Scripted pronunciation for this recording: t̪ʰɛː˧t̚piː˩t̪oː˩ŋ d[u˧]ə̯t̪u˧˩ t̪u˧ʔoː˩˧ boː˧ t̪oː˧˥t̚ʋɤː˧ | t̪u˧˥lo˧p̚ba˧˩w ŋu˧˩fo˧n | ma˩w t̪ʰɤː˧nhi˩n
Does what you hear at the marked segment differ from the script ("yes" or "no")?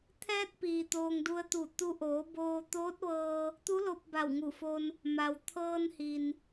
no